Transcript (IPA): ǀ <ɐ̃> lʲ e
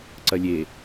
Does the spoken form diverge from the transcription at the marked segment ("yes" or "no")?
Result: yes